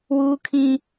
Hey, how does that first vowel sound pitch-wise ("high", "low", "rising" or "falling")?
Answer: high